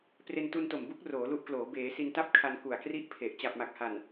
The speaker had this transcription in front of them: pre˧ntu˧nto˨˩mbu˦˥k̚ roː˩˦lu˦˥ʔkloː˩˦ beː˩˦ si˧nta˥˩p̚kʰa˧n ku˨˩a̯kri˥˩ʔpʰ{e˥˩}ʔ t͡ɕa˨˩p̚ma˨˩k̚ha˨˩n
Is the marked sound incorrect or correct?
incorrect: e˨˩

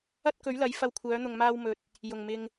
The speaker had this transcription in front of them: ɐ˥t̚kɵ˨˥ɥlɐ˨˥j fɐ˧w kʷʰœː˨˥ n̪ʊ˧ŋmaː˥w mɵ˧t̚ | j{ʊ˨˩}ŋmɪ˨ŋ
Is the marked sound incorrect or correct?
correct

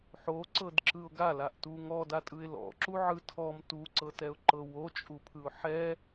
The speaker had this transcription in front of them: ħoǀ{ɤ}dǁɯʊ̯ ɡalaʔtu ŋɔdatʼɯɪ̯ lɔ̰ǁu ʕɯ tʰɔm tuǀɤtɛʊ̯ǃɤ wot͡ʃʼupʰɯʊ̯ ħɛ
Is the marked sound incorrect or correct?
correct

